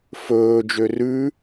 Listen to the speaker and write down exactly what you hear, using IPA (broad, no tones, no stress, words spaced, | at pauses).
fɵː d͡ʒørʉ